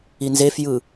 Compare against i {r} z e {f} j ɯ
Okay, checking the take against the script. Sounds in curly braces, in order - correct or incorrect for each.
incorrect: n, correct

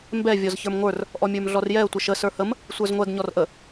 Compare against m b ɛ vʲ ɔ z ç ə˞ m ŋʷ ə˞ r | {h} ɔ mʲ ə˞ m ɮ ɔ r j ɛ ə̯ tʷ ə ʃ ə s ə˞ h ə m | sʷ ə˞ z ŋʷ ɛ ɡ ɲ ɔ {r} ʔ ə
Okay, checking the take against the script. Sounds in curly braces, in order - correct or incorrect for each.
incorrect: ʔ, correct

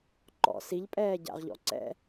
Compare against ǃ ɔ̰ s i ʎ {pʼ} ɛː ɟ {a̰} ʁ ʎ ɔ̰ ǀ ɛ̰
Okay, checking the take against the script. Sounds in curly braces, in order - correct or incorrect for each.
correct, correct

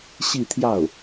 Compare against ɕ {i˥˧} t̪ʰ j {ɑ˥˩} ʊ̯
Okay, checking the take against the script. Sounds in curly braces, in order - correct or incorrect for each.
correct, correct

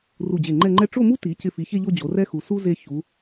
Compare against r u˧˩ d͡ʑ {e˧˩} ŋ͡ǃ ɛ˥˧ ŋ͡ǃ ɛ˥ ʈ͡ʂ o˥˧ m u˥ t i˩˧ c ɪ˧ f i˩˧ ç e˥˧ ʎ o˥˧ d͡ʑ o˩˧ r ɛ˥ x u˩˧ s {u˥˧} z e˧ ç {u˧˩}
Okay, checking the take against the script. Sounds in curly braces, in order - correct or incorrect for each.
correct, incorrect: u˥, incorrect: u˩˧

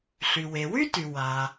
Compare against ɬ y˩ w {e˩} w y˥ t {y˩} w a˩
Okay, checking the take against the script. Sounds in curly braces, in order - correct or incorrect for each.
correct, correct

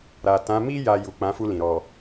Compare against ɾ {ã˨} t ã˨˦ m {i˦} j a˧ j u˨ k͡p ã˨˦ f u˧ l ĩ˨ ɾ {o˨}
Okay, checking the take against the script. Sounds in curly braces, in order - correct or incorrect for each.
incorrect: a˨, correct, incorrect: ɔ˨

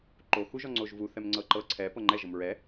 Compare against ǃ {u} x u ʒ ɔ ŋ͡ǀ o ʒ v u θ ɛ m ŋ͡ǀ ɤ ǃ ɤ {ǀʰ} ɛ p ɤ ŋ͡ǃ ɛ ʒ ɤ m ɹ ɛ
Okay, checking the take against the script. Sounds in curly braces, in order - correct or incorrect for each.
incorrect: o, correct

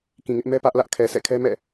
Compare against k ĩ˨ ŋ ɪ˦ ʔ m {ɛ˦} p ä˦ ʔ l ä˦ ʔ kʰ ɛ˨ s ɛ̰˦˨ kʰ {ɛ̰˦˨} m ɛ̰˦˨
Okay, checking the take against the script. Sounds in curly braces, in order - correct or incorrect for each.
correct, incorrect: ɛ˦

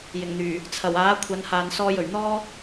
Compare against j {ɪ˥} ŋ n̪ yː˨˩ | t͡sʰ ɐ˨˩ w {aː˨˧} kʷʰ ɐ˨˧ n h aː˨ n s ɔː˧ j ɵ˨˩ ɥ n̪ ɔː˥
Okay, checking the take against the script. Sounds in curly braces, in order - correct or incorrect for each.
incorrect: ɪ˨˩, incorrect: aː˨˥

